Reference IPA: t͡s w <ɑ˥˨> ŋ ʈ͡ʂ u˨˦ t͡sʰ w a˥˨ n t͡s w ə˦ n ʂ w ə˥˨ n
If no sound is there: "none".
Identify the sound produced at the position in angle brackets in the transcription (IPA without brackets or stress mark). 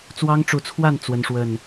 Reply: ɑ˦